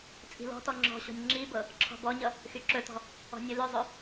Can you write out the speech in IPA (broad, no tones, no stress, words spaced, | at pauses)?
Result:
t͡sʼi̤lɔ̤tɔ ŋ͡ǁɔ̤ɕɔ̤nʲ ŋ͡ǁibɤ | ǁʰɔ̤bɔɲʌ | xyǁɵtɔ̤ | ɔ̤nʲɵlɵzˤɵ